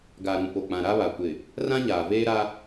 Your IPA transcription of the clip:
ɡ a˨ ɾ ũ˨ p o˨ k͡p ã˨ ɾ a˦ β a˨ kʷ ɪ˨ | r ã˦ ɲ aː˨ v eː˦ ɾ a˦

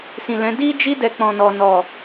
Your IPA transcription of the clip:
s ĩ˨ l ɛ̃˨˦ d i˦ d͡ʒ i˦ d ɛ˧ k͡p ɔ̃˨ n ɔ˨ n ɔ˨

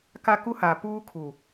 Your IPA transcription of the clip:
k a˦ k u˦ h a˨ p uː˦ kʰ u˨

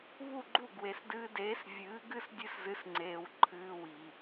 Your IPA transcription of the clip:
β u˥˩ ɡ͡ǃ u˥˩ ɡ w e˩ s d ɨː˧ d eː˩˥ s vʲ ɨː˩˥ ɡ ɨ˥ s dʲ ɨ˧ s z ɨ˩˥ s ŋ͡ǀ eː˩ w ǃʰ ɨː˧ w i˩

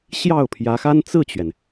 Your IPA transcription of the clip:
ɕ j ɑ˥˩ ʊ̯ pʰ j ä˧˥ x a˥ n t͡s ɹ̩˥˩ t͡ɕ ɥ ɛ˩ n

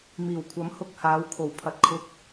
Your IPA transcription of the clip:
m iː˨˩ w kʷʰ ɐ˨˥ m h ʊ˧ k̚ h aː˨˧ w kʰ o˨˩ w pʰ ɐ˨ t̚ kʰ ʊ˧ k̚

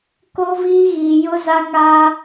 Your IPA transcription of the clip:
k o˦ v iː˦ ɣ iː˨ j ʊ˦ z a˦ ŋ a˦

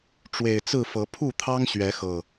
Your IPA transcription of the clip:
ʈ͡ʂ w e˨˩ ɪ̯ t͡s ɹ̩˥˨ f ɤ˨˦ pʰ u˥˨ t̪ʰ ɑ˦ ŋ ɕ ɥ ɛ˨˦ x ɤ˨˩

